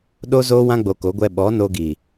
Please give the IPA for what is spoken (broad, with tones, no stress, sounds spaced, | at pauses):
ɗ o˦ z oː˦ w ã˦ ɡ͡b o˧ k o˨˦ ɡʷ ɛ˧ ɓ ɔ˨˦ n o˧ ɡ i˨